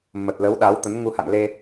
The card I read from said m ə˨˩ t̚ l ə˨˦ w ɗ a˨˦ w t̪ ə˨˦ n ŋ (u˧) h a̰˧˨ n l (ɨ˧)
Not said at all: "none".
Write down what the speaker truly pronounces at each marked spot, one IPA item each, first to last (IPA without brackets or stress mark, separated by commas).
u˧, e˧